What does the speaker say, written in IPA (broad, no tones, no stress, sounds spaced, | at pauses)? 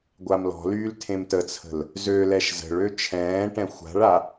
ɡʷ a m l ɔ̤ l yː l tʰ ẽ m t ə t͡sʰ ə̤ l | z ø l ɛ ʃ z ə̤ ɭ ø t͡ʃʰ ɛ̃ː ʈ ɛ̃ xʷ a̤ ɭ a